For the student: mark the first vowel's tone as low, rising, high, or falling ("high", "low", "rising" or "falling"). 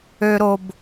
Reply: high